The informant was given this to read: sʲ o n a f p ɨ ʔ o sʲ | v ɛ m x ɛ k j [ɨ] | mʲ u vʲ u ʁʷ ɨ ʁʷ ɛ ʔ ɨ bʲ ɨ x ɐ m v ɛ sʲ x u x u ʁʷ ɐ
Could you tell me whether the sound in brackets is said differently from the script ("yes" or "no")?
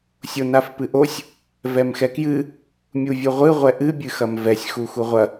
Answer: no